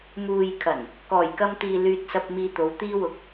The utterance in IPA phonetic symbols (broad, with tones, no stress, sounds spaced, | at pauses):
m uː˨ j kʰ ɐ˨˩ n | k ɔː˨˩ j k ɐ˧ m t̪ iː˨ l yː˧ t̚ s ɐ˧ p̚ m iː˧ t̪ o˨˧ w t̪ iː˥ w ʊ˧ k̚